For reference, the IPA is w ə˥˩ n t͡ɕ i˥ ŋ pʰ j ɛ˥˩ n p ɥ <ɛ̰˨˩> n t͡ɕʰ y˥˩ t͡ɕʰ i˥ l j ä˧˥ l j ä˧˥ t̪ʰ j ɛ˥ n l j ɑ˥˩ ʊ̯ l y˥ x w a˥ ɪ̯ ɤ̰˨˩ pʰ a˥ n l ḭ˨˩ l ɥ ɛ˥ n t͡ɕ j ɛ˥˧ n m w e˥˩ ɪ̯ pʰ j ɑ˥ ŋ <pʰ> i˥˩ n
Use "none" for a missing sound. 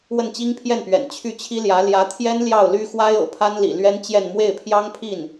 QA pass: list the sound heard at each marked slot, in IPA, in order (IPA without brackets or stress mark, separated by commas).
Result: ɛ̰˨˩, pʰ